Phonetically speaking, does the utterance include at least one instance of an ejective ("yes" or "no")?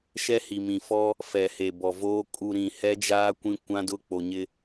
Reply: yes